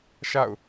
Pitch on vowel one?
falling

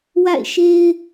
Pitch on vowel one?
falling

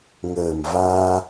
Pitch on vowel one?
low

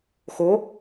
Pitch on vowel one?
rising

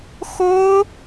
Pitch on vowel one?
high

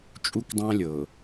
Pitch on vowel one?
high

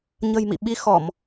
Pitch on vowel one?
low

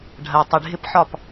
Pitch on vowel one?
low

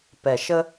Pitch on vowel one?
low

